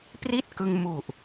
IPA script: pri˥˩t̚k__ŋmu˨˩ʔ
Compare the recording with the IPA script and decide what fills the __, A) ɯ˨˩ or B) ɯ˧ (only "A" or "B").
B